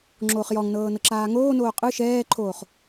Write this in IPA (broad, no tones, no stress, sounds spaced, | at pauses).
ŋ͡ǁ oː χ j ɔ ŋ n ɤː n ɤ ǁ aː ŋ oː n oː qʼ ɯ ʃ ɛː ǃʰ oː χ